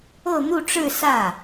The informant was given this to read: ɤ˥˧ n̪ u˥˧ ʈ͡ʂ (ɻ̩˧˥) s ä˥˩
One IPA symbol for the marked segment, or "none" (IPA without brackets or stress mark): ɻ̩˥˧